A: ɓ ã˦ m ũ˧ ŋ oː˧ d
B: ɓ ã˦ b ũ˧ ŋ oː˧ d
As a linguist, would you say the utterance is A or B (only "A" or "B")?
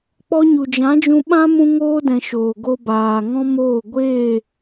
A